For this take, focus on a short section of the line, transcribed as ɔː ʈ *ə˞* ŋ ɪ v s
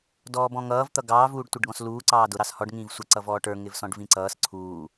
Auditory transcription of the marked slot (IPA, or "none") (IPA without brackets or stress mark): ə˞